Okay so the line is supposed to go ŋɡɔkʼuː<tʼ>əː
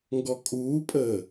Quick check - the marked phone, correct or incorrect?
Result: incorrect